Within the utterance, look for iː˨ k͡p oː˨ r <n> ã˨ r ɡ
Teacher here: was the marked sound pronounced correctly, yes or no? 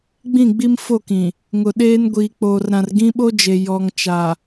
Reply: no